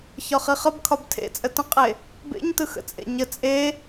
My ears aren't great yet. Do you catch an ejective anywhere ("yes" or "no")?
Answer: yes